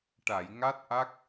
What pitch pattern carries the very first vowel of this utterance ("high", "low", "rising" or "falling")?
low